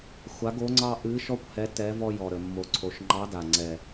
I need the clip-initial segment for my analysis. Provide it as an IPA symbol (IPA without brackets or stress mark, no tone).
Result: xʷ